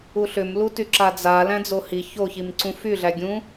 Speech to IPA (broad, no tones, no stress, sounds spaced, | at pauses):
u ɬ ʏ m l u t y ǁ a d͡z a l æ̃ d͡z o h i ç o ç i m ǀ ũ f y ɮ æ ɡʲ ũ